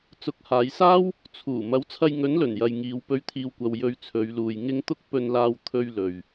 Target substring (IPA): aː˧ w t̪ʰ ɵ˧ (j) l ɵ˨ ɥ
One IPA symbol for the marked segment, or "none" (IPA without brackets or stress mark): ɥ